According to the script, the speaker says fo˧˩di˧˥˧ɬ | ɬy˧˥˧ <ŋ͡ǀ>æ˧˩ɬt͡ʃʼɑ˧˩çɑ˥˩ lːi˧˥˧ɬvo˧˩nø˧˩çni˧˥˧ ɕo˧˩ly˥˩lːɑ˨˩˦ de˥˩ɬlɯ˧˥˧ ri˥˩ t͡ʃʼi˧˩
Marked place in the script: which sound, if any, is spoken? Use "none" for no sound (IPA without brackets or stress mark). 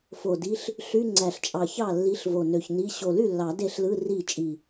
ŋ͡ǀ